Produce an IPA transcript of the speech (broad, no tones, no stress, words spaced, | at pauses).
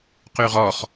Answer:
qyʁɔχ